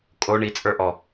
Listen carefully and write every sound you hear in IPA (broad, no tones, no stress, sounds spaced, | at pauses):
kʼ o ɳ i t͡sʼ ə˞ ʔ ɔ